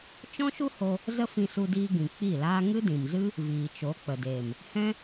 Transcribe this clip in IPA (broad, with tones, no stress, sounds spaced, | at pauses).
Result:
t͡ʃ ɔ̃˦ ʃ u˦ h o˧ | z ə˦ f ĩ˧ s u˧ d iː˧ ɡ ĩ˨ k͡p i˦˨ l aː˦ ŋ ɨ˦ d ĩ˨ m z ɨ˦ | v iː˨ t͡ʃ o˨˦ k͡p ə˨ d eː˨ m | h ɛ̃˦